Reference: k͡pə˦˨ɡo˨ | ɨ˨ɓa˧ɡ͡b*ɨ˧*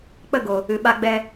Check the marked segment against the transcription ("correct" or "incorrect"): incorrect